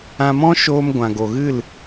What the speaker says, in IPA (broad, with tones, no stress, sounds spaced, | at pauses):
ã˧ m ɔ̃˦ ʃ oː˧ m ɡʷ ã˨ ɡ o˨ ɣ ɨ˦˨ l